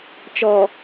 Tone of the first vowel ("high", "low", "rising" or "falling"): low